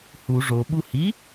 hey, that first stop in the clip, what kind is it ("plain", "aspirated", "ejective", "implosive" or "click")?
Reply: implosive